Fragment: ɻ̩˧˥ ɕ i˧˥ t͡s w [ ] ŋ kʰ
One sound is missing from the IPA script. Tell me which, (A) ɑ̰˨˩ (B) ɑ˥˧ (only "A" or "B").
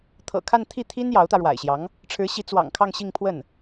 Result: A